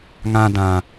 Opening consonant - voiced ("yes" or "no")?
yes